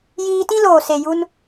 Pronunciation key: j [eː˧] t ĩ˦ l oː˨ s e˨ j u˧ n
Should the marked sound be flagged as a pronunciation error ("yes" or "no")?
yes